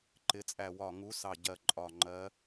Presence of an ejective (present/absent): present